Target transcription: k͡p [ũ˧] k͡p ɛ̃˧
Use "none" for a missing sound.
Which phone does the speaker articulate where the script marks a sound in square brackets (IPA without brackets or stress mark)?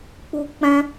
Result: u˧